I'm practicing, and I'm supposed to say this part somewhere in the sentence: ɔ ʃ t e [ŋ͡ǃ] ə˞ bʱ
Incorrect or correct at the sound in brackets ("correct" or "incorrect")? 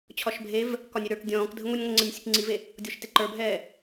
incorrect